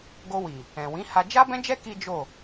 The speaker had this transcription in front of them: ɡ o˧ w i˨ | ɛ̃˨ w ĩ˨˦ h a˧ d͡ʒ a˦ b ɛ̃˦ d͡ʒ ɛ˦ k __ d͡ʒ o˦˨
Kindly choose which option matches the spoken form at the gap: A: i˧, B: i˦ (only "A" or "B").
B